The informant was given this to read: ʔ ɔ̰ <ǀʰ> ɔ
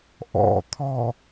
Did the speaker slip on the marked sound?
yes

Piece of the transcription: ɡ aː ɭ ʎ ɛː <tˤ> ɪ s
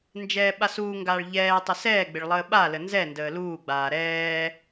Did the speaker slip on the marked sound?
no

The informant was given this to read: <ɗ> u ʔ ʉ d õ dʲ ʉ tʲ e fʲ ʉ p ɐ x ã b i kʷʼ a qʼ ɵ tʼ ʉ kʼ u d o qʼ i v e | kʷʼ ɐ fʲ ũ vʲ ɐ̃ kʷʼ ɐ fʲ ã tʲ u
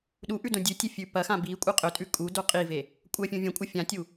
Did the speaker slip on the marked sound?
no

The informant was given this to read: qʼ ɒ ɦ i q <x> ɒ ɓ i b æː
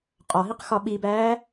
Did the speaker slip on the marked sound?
no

